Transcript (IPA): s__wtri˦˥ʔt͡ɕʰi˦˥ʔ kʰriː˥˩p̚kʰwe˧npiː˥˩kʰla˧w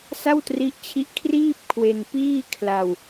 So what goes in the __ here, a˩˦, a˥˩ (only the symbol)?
a˥˩